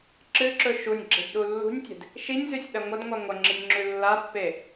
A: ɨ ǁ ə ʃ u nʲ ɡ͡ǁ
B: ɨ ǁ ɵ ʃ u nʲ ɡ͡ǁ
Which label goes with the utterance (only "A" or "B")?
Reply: B